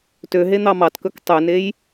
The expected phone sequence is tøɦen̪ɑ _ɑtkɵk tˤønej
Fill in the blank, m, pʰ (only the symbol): m